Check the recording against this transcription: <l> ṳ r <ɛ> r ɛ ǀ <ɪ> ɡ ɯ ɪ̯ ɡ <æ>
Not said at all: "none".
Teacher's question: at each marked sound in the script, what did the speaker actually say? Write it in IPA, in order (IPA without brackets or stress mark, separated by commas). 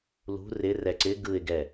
l, ɪ, ɪ, ɛ